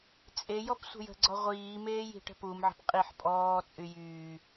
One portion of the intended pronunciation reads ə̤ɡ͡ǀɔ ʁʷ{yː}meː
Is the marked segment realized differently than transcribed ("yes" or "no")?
yes